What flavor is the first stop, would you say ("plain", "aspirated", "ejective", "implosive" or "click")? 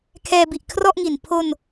aspirated